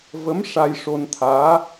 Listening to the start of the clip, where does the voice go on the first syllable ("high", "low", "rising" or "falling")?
rising